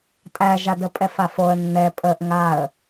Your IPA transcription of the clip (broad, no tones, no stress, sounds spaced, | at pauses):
tʼ æ ʒ a d ə pʼ ɛ f a f o ə̯ nː ɛ pʼ ə ʔ ŋ a ə̯